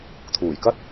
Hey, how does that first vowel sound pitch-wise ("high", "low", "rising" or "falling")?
low